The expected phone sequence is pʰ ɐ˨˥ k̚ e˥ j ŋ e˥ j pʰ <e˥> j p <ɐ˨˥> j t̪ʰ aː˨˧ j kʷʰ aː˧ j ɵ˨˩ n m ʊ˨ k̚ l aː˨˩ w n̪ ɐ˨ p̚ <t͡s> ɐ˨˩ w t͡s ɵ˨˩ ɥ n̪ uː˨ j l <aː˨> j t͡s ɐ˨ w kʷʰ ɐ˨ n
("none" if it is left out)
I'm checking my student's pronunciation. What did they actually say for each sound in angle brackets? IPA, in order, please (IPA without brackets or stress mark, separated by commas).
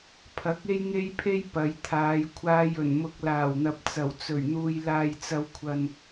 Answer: e˥, ɐ˨˧, t͡s, aː˨